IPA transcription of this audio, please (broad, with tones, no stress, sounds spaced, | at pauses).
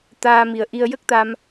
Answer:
t̪ aː˧ m i˨˩ ə̯ ʔ i˧ ə̯ j ə˦˥ k̚ t̪ a˧ m